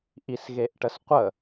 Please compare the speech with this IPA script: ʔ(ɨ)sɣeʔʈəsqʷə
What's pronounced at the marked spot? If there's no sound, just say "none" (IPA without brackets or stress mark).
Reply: i